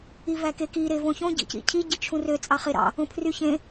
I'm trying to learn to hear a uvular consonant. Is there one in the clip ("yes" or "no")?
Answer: yes